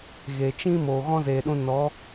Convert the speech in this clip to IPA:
ɣ e˨ t͡ʃ ĩ˦ m oː˨ ɣ ɔ̃˦ z eː˨ ɗ ũ˧ n ɔ˨˦

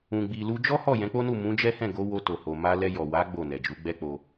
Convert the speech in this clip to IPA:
ũ˨ ɡ͡b i˨ l u˧ d͡ʒ ɔ˦ h ɔ˦˨ j ɛ̃˨˦ k͡p o˦ n u˦˨ m ũ˨˦ d͡ʒ ɛ˦ h ɛ̃˦˨ ɡ o˨˦ w o˧ t o˨ h o˨ m a˧ l ɛ˧ j ɔ˨ w a˨˦ ɡ͡b o˦˨ n ɛ˨ d͡ʒ u˨˦ ɡ͡b ɛ˦ k͡p o˧

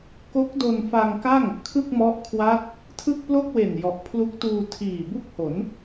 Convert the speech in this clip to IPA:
k o˦˥ k̚ d o˧ n f a˧ ŋ k a˥˩ ŋ | kʰ ɯ˥˩ k̚ m ɔ˦˥ ʔ kʰ w a˦˥ t̚ | tʰ ɯ˥˩ k̚ p l o˥˩ k̚ w e˨˩ n j ɔ˨˩ ʔ pʰ l u˦˥ k̚ t uː˧ tʰ iː˨˩ b u˥˩ k̚ h o˩˦ n

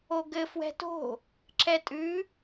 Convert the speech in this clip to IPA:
o ɡ ɘ f w ɛ̤ t o̤ | ǁʰ ɛ tʼ ʉ

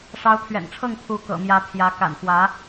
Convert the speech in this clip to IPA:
ʂ ɑ˧˥ ʊ̯ t̪ʰ ɥ ɛ̰˨˩ n ʈ͡ʂʰ ɤ˥˩ ŋ pʰ u˧˥ k ɤ̰˨˩ m j ä˧˥ pʰ j ä˧˥ k a̰˨˩ n f w ä˧˥

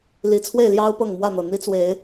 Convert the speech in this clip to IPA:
l i˨˦ t͡sʰ w e˥˨ ɪ̯ l j ɑ˦ ʊ̯ p ɤ˥˨ ŋ m w ä˥˨ n̪ ɤ˨˩ n̪ i˦ t͡s w e˨˦ ɪ̯

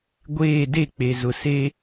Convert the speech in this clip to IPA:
ɡʷ eː˦˨ d e˦˨ k͡p e˨ z ʊ˨ s e˦

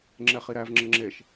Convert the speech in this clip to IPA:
ŋ͡ǁ ɛ χ i ɾ æ v ŋ͡ǁ ə ŋ͡ǁ e ʃ

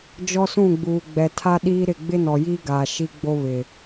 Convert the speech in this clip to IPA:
d͡ʒ ɔ˦ s ũ˦˨ ɡ͡b uː˨ ɡ͡b ɛ˨ tʰ a˦ ɗ iː˦ ɾ ɪ˦˨ ɡ͡b ɪ˦ n ɔ˨ j iː˦ ɡ aː˨ ʃ i˦ ɡ͡b o˦ β ɪ˨

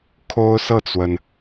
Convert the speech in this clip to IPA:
kʰ o˦ ʊ̯ s ɤ˥˨ t͡s w ə˩ n

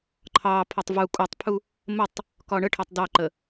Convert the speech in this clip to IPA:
ǃʰ ɑ pʰ ɔ tˤ v u kʼ u tˤ pʰ u | m ə tˤ | k ɒ ɳ ə ʈʰ ɔ tˤ d ɑ ǃ ə

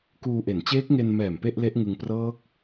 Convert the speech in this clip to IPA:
k uː˧ ʔ e˩˦ n t͡ɕ eː˦˥ k̚ ŋ e˧ n m ɛː˨˩ m p e˥˩ ʔ l e˦˥ ʔ ŋ ɯ˧ ŋ p r ɤː˦˥ k̚

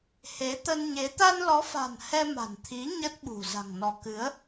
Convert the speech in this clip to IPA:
h e˨˦ t̪ ə˧ n ɲ e˨˦ t̪ a˧ n l ɔ˨˦ f a̤˨˩ n h ɛ˧ m a̤˨˩ n t̪ʰ i˨˦ ɲ ə˦˥ t̚ ɓ ṳ˨˩ z a̤˨˩ ŋ n ɔ˨˦ k ɨ˨˦ ə̯

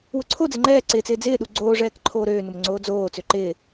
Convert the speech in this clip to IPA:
w ʊ ǀʰ o d͡z ɪ ŋ͡ǃ ɛː ǀ ɪː t͡s ɪː d͡z ɪː ɗ u ɡ͡ǀ oː ʐ ɛː k ǃʰ oː ɾ øː n ʊ m ŋ͡ǀ oː d͡z oː t͡s ø ǃ ɪː

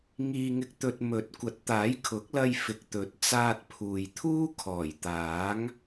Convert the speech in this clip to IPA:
ŋ iː˧ ŋ ɪ˧ k̚ t̪ ɵ˧ t̚ m ɵ˨˥ t̚ kʷ ɐ˨˥ t̚ t̪ aː˨˥ j kʰ ʊ˨˥ k̚ l ɐ˧ j f ɪ˨ k̚ t̪ ɵ˨˥ t̚ t͡s aː˧ t̚ pʰ uː˨ j t̪ʰ uː˥ kʰ ɔː˨˩ j t̪ aː˨˥ ŋ

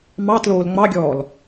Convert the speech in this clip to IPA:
m ɑ t l oː l ŋ͡m ɑ ɡʲ ɔː l

